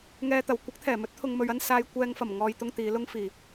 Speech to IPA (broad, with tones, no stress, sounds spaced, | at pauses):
ŋ ɛː˨ t̪ ɐ˨˩ w kʷ ɪ˨˥ k̚ t̪ʰ ɛː˨˩ m ɵ˨˥ t̚ t̪ʰ ʊ˨ ŋ m ɵ˨ ɥ ɐ˧ n s aː˨ j kʷ ɛː˨ ŋ f ɐ˨˩ m ŋ ɔː˨ j t̪ ʊ˨˧ ŋ t̪ iː˨˧ l ʊ˥ ŋ f iː˨˩